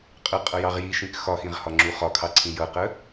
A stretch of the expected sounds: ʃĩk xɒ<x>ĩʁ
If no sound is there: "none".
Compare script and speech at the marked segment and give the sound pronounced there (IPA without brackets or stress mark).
x